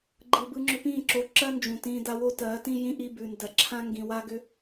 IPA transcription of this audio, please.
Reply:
ɡ͡ǃ ɯ˨ b ɯ˧ ŋ͡ǁ ʏ˧ p ĩː˦˨ ǁ o˧ ǁ ɜ˦ n d͡ʒ ũ˨ t ĩː˧ d a˧ w o˦ t ɜː˨˦ t ĩ˦ j ĩ˦ ʔ i˦ b ʉ˧ n d ɜ˧ ǁʰ ã˦ ŋ ɡ ĩ˧ w a˦ ɡ ʏ˦

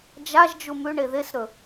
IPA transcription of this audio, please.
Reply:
d͡ʒ a ʒ d͡ʒ u m ʉ ɳ e ð e s ɾ ɵ

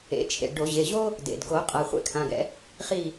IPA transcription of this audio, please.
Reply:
ḛ˩˧˩ t͡ʃʰ ḛ˩ ɖ o˧˩˧ ʑ e˩˧˩ ʑ o˥ | d ḛ˩ d ɡ o˧˩˧ qʼ a˩˧˩ χʷ ɛ̰˥ kʰ ã˩˧˩ ɡ ɛ̰˧˥ | χ i˦˨

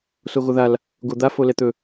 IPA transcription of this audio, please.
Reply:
s o ɣ o ð a l | ɡ o d̪ a f o l ɛ t̪ ɵ

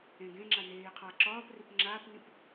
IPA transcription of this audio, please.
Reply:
ẽ ɡ ẽ ŋ͡ǁ a n eː qʰ a ǁ ɒː p r i p ŋ͡ǁ aː p n ĩ p

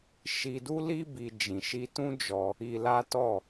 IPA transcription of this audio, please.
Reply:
ʃ i˧ d u˦ l i˦ b i˧ d͡ʒ ĩ˨ ʃ i˧ t ũ˦ d͡ʒ ɔ˧ | i˧ l a˦ t ɔ˦˨

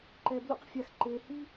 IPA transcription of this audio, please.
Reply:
ǃ ɛ˨ b l ṵ˧ q fʲ a˨ x ǃ eː˨ h i˦

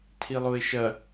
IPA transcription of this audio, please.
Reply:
tʰ i lˠ o ɪ̯ ʃ ɐ

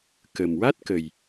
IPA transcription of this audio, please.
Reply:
k ə˨˩ m w a˦˥ t̚ k ə˨˩ j

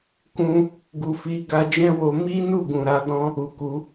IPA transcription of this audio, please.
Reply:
k ũ˧ | ɡ u˨ f i˨˦ ɡ a˧ d͡ʒ ɛ̃˦ w o˧ m i˦ n u˦˨ ɡ ũ˨ ɾ a˨˦ d ɔ̃˦ | u˨ k u˨˦

